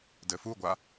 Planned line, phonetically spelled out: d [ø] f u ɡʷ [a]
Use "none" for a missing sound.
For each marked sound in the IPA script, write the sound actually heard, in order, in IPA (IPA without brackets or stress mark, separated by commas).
ɘ, a